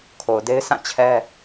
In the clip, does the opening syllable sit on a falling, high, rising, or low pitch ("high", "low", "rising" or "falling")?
low